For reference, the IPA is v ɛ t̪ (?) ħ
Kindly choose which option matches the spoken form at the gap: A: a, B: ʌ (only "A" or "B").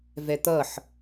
B